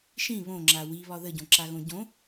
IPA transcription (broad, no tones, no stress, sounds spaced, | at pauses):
ʃ ĩ β õ ŋ͡ǁ a w i β ɒ ð ə ɟ õ ǁ a ɣ õ ɟ õ